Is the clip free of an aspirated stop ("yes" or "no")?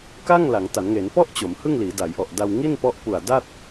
yes